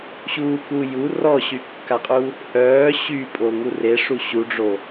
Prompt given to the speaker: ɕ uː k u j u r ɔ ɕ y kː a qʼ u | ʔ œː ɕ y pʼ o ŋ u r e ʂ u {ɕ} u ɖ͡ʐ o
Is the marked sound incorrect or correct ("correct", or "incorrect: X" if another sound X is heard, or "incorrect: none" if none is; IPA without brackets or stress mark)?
correct